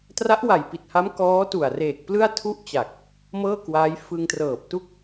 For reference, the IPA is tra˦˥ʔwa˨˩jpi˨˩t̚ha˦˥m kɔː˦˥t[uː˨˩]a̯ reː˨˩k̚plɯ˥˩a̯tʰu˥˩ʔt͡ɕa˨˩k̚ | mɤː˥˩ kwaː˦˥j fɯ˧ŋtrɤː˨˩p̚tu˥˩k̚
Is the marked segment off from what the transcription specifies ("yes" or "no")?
yes